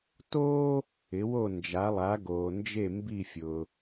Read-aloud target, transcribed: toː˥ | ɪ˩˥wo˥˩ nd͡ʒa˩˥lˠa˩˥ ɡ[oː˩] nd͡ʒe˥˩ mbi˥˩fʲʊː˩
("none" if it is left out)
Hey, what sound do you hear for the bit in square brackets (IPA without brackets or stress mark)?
oː˩